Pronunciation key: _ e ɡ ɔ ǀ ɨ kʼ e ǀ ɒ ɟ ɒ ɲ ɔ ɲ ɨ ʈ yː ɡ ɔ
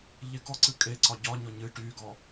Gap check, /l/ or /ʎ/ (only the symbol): ʎ